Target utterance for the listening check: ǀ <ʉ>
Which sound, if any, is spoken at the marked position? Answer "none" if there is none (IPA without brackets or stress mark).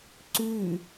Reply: ʉ